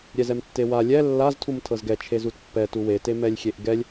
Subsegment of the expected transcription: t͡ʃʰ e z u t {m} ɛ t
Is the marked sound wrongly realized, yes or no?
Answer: yes